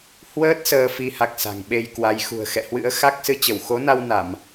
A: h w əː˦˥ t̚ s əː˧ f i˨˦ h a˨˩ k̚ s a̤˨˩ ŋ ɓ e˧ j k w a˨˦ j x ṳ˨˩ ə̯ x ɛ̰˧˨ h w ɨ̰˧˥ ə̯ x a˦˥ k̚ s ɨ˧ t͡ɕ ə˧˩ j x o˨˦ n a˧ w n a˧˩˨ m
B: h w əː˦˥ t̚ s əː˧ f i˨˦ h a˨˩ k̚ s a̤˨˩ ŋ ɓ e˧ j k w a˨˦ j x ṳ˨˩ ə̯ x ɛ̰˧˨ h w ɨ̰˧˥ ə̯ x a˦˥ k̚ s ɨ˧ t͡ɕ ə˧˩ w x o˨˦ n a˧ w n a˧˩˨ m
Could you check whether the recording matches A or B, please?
B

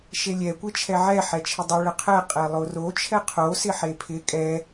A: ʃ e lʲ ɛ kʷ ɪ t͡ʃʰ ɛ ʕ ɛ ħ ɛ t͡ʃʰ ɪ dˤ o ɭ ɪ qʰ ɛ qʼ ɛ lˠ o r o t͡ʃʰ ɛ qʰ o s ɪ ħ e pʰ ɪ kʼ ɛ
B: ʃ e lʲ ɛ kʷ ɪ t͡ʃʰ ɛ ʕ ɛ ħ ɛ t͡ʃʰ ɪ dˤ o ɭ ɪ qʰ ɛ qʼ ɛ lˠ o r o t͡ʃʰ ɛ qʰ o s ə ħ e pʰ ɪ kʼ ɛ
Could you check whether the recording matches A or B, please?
A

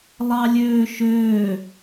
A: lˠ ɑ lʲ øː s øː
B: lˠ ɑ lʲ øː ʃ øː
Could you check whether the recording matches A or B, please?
B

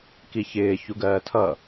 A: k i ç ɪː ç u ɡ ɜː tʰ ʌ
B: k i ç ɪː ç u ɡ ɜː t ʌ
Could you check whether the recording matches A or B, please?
A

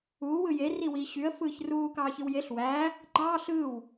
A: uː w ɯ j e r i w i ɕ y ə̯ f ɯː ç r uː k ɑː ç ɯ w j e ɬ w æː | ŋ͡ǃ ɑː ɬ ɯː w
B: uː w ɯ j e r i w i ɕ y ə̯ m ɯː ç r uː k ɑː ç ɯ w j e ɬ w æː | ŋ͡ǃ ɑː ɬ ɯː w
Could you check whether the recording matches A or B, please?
A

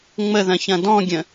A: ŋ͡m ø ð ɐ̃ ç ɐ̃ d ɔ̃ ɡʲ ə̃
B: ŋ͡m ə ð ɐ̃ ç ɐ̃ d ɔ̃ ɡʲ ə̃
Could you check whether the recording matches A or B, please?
B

